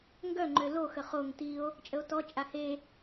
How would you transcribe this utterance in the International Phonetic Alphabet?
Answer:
ŋɡœŋ͡ǃø loxə χoŋ tio̯ | t͡ʃʼəo̯tɔ t͡ʃʼahe

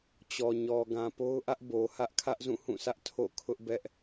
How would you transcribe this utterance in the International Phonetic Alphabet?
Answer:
t͡ɕɔ˨ɲɔ˨ ɡã˨po˦ʊ̯ʔä˦ʔ bo˨hä˦ʔ kʰä˦ʔzũ˦˨hũ˦˨sʰä˦ʔ tʰo̰˦˨ kʰʊ˦ʔbɛ˦ʔ

